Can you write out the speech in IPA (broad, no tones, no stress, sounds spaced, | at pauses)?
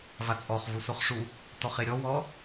v a t͡sʼ ɔ χ v u s o χ ʂ u | t ɔ χ e ɾʲ ɔ w ɔ